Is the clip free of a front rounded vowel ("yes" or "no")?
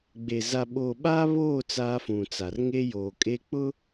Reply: yes